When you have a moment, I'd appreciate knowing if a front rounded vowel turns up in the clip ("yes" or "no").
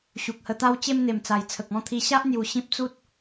no